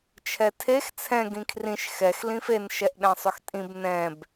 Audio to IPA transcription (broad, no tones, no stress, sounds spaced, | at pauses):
t͡ʃʰ ɛ tʰ e x t͡sʰ ɛ̃ ɡ ĩ kʰ r ĩ ʃ x ɛ x l ĩ f e n ʃ ɛ ʔ ɗ ɛ̃ sˤ ʏ x tʼ ĩ b n ɛ̃ b